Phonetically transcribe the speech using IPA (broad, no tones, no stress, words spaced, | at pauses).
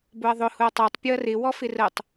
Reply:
bʊɐ̯ðˤʊ hʊɐ̯tˤætˤ pʲʊɐ̯rɪ wɔfɪrətˤ